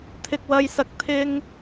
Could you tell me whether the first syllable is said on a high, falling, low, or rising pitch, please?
high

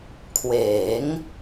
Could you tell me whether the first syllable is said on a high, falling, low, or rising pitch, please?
rising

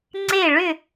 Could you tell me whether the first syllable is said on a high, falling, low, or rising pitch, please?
falling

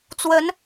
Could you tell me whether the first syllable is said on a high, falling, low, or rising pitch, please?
rising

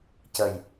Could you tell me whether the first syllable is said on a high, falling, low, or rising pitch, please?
low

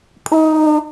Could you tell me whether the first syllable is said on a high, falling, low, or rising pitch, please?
high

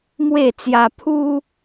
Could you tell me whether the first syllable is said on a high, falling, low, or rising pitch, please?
falling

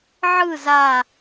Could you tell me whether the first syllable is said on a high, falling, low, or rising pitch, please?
falling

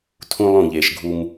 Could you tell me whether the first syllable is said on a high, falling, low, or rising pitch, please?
high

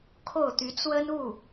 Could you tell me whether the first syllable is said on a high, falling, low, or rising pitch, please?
falling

